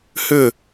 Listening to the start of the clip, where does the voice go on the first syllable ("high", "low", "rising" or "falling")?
falling